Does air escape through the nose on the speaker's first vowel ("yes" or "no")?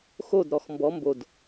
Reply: no